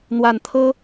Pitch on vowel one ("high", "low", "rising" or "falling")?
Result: low